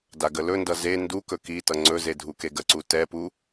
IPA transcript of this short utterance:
daɡəlɵndʌ ze ndukɵ kitʌ ŋ͡ǀɵze dʱukeɡəǀu tɛpu

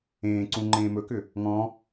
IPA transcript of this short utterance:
ẽːǀũ ŋ͡ǃẽːmɵkʏ | ŋɔ̃

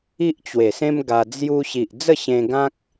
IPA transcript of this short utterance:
i˦ʔt͡ɕwe˨˩sẽ˦m ɡa˧d͡zju˦ ɕi˨ʔd͡zə˥˧ɕẽ˧ɡã˦k̚

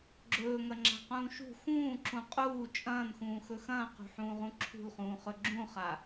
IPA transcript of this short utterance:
ɡ͡ǁɵːŋɐŋ͡ǁa̤qũː ʃṳ xũːǁũ qʼuː t͡ʃʼɐ̃ːnxũːxɵ xɐ̃ːqṳħũːʁũ ǁʰṳlχũːχɵ ɡ͡ǁũχa

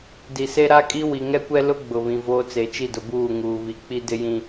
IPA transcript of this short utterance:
di˨se˦ ɾa˦kʼi˦ wi˨ŋɛ˦kʷɛ˦lʊ˦ ɡ͡bʊ˨βĩ˨voː˦ t͡se˨t͡ʃi˦˨dʊ˨ buː˦˨ŋuː˨βi˨ k͡pi˦dɪ˦jĩ˦

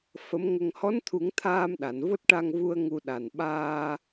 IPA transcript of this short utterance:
fə˧˥mŋə˧ŋ hɔ˧˥nt̪ʰu˨˩˦ŋ t̪ʰaː˧mɗa˨˩˨n vo˦˥t̚ʈa˧ŋvu˧ə̯ ŋu˧ɗa˨˩n ɓaː˧

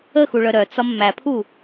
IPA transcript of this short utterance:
əxuɭœ ɾœt͡sɒ mːæpʰu

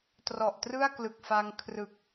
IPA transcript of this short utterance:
trɔ˨˩ʔtrɯ˥˩a̯klɯ˨˩k̚fa˧ŋ kʰrɯ˨˩k̚

